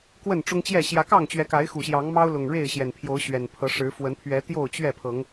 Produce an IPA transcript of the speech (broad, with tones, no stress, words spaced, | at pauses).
kwə˥˨nʈ͡ʂʊ˦ŋt͡ɕjɛ˥˨ ɕjä˨˦kɑ˥˨ŋt͡ɕɥɛ˨˦ka˨˦ɪ̯ xu˨˩ɕjɑ˨˦ŋmɑ˦ʊ̯lʊ˨˩ŋ ɻe˥˨ɪ̯ɕjɛ˨˩npʰjo˨˦ʊ̯ ɕɥɛ˨˩npʰɤ˨˦ ʂɻ̩˨˦fwə˨˦npʰɥɛ˨˦ t̪jo˥˨ʊ̯t͡ɕɥɛ˥˨pʰɤ˨˦ŋ